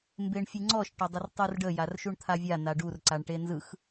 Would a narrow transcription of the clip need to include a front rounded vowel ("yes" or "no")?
no